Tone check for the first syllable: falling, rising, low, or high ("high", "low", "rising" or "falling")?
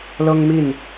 high